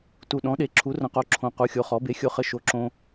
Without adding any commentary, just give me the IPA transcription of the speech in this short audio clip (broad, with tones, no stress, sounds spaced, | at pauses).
t u˨ ɗ ɔ̃˩˥ ɗ e˩˥ ǁʰ u˩˥ r ə̃˩˥ q o˩˥ ǁʰ õ˨ q u˩˥ xʲ o˩˥ χ ɔ˩˥ b e˩˥ xʲ o˨ χ ə˨ ʃ o˨ ǁ õ˨